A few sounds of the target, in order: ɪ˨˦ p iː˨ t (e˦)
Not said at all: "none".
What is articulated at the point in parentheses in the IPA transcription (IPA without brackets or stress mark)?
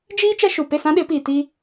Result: i˦